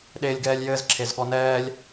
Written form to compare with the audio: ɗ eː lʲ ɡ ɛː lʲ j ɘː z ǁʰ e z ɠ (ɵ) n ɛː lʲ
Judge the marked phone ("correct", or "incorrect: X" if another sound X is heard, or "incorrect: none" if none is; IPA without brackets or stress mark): incorrect: ɔ